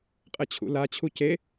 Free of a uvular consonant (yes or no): no